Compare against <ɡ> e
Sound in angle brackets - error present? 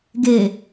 no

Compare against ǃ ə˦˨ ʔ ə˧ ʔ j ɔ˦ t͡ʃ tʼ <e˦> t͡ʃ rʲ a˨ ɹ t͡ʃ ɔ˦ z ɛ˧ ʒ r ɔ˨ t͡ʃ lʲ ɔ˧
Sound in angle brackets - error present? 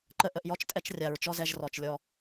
yes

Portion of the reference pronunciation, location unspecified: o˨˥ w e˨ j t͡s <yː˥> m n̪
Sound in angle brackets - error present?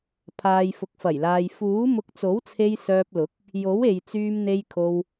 yes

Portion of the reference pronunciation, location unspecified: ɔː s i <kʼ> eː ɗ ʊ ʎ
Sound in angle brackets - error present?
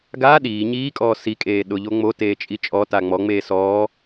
no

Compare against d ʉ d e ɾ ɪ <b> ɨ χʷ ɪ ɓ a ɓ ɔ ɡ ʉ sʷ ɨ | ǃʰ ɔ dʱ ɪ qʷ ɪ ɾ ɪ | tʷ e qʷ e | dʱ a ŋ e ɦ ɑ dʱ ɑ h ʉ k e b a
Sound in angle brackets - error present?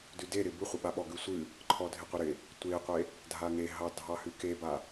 no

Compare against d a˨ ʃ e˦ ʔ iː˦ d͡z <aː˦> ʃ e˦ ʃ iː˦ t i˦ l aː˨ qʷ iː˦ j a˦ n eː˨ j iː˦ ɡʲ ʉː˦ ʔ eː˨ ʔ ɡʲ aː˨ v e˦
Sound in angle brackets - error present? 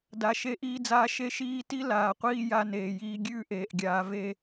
no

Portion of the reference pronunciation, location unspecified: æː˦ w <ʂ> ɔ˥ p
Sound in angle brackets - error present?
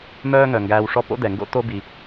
no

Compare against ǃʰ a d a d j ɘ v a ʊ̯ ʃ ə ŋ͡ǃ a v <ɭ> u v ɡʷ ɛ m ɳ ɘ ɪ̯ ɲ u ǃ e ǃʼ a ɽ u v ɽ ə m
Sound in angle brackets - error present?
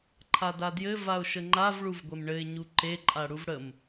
no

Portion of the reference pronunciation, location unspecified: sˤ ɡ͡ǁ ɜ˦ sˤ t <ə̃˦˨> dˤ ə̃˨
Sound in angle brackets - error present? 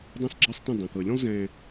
no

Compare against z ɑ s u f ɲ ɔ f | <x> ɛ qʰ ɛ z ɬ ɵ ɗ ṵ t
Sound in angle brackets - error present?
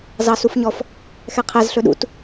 no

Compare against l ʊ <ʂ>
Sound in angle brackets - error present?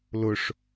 no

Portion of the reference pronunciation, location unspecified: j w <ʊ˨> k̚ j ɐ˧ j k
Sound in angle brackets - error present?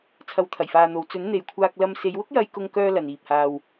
yes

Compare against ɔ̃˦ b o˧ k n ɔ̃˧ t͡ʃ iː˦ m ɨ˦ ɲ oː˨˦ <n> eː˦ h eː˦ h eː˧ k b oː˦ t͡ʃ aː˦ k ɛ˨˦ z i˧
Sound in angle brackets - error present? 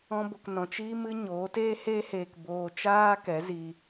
yes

